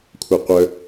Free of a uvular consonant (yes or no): no